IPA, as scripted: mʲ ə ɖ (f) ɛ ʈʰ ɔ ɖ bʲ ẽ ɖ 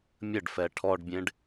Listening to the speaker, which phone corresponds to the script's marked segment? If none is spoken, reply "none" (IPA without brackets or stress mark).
f